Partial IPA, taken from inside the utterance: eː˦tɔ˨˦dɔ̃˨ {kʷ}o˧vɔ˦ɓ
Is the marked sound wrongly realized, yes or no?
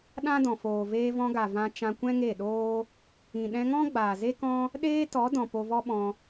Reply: yes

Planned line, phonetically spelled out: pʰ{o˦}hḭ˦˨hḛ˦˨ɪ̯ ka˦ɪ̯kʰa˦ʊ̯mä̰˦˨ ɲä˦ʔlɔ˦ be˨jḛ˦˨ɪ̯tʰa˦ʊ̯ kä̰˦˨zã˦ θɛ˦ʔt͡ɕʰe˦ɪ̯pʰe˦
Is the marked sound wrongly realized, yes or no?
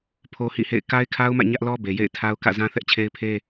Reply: no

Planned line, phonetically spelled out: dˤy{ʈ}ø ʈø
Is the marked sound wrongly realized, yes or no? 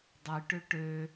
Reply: no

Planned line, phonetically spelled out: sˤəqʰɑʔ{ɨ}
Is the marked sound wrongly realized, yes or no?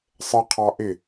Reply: yes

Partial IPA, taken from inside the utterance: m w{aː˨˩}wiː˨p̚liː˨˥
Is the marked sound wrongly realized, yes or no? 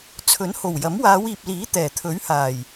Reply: yes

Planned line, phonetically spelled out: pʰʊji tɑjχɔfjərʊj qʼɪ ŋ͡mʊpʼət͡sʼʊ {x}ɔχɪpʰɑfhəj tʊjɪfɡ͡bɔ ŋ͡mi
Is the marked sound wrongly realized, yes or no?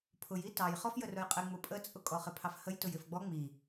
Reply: yes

